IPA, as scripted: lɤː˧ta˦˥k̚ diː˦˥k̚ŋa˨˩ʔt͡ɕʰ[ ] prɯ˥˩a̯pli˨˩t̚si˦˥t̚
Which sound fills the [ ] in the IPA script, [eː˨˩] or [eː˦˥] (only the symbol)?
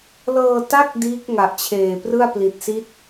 eː˨˩